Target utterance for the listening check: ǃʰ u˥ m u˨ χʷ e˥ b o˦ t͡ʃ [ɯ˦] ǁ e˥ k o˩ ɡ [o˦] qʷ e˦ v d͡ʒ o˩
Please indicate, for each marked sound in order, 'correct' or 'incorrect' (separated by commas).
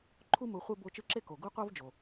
correct, incorrect